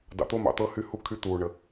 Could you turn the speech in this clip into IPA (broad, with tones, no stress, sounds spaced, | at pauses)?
d ɑ̰˨ t̪ o˦ m ɑ̰˨ t̪ ɤ˦ h y˦ h u˦ kʰ y˦ t̪ uː˨ ɳ ə˨